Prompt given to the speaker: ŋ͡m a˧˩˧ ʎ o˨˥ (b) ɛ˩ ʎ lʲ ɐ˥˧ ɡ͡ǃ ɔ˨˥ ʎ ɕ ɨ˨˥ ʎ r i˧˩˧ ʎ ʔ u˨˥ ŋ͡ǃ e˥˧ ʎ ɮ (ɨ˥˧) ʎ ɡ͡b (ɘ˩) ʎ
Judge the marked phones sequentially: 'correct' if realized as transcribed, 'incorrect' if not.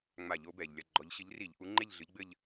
correct, incorrect, incorrect

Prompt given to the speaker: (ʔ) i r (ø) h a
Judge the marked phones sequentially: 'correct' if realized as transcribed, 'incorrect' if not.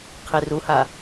incorrect, incorrect

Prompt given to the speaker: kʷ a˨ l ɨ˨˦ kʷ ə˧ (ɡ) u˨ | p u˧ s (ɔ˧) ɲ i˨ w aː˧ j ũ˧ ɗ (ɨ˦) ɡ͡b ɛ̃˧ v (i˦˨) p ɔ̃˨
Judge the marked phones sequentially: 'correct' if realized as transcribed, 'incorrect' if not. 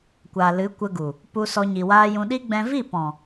correct, correct, incorrect, correct

